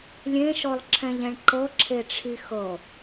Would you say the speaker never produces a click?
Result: no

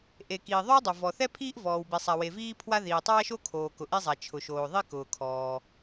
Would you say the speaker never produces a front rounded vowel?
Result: yes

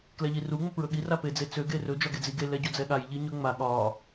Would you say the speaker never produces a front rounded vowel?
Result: no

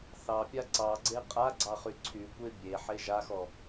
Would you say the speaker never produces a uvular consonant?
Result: no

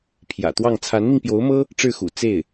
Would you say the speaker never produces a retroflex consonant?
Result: no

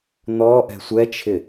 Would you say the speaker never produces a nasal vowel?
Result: yes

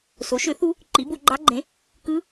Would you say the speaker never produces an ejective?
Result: yes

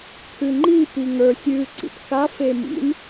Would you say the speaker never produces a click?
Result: no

